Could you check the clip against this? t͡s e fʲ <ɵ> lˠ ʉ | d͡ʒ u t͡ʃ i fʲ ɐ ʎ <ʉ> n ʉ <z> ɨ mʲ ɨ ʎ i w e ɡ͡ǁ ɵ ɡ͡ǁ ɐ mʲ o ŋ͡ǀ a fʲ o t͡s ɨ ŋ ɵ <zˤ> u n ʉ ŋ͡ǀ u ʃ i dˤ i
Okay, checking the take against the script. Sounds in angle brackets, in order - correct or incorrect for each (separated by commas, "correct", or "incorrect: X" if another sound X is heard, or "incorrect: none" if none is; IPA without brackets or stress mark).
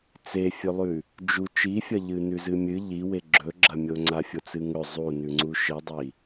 correct, incorrect: ɨ, correct, correct